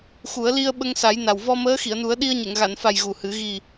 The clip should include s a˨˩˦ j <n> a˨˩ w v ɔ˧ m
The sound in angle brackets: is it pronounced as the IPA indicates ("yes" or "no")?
yes